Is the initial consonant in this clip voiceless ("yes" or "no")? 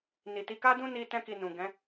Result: no